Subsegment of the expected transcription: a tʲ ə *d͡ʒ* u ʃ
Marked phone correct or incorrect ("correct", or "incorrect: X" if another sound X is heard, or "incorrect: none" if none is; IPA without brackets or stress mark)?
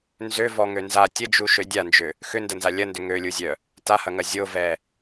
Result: correct